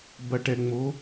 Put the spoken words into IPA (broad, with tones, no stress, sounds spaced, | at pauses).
b ɐ˨ ʈ ɛ˨ ŋ͡m o˨˦